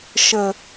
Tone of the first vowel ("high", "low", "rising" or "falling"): low